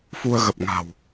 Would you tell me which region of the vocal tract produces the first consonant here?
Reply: lips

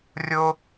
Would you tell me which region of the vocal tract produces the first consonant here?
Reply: tongue tip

